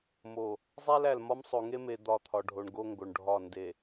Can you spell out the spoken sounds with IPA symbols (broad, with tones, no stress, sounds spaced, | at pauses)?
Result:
m o˨ | zˤ æ˦ l æ˨ l m ɒ˦ m sˤ o˨ ŋ e˦ m e˨ d̪ ɒ˦˨ t̪ʰ ɒ˨ ɖʱ o˨ ɳ ɡ o˦ ŋ ɡ o˨ ɳ ɖʱ ɒ˦˨ n d e˨